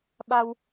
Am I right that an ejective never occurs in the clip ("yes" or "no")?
yes